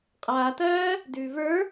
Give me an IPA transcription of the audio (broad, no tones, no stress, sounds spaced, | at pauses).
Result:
qʼ aː t ɜː | d ʉː v ə˞